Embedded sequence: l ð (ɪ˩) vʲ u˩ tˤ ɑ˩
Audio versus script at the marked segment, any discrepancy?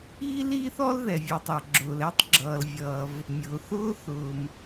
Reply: yes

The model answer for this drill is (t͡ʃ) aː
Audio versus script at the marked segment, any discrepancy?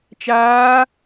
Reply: no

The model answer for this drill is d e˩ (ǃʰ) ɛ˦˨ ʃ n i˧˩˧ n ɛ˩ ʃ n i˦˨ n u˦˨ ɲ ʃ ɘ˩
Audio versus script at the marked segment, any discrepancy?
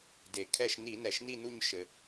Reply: yes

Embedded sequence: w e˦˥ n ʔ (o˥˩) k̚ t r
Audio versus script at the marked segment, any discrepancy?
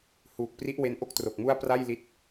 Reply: no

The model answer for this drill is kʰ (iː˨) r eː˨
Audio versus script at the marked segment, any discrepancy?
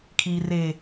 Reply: no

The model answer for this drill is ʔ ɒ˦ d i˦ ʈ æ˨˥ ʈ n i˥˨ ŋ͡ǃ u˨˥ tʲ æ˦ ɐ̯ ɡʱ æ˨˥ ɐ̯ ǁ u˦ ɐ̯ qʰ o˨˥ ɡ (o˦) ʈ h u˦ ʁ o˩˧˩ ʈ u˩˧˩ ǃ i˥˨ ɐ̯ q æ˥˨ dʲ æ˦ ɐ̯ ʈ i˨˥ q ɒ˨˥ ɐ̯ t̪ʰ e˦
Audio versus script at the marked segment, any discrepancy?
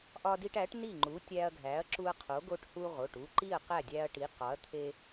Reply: no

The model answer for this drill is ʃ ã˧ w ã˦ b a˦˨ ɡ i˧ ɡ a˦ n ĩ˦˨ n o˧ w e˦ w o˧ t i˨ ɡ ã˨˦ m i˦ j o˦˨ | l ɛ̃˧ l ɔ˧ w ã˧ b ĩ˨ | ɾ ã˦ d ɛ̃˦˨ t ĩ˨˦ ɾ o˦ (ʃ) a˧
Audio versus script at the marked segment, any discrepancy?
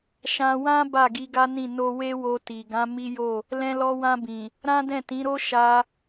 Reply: no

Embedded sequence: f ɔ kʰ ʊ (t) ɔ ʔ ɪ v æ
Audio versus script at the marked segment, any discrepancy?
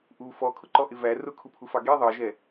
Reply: yes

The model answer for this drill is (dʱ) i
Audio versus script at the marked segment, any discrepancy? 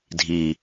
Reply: no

